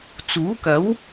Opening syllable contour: rising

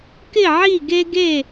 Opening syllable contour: falling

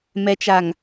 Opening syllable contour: low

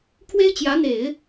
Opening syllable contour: high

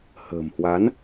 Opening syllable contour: low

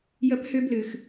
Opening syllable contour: rising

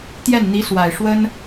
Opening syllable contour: falling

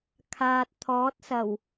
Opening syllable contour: low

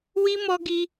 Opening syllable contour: high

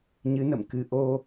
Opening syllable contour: rising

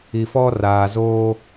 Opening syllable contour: low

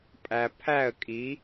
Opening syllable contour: low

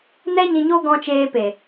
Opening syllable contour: high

